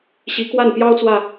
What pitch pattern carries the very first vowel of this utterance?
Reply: rising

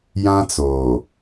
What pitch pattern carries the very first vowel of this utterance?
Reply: high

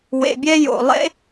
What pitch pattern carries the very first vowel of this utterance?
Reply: low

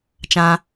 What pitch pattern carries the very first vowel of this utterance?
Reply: high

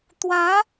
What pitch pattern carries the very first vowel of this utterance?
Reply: rising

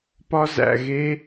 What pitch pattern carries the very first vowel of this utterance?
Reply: high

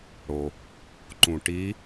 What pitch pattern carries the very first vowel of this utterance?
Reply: low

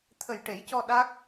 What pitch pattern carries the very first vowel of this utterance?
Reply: low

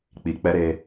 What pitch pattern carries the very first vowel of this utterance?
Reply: low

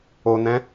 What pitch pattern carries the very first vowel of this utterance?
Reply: low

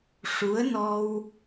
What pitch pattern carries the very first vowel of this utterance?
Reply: rising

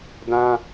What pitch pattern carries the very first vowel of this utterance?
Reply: high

